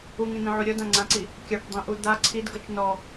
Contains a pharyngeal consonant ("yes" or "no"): yes